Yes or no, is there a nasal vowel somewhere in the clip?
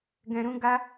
yes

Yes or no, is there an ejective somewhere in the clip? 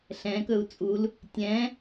yes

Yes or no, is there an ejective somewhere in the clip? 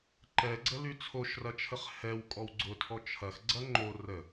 yes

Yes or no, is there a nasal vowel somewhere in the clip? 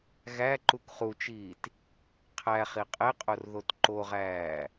no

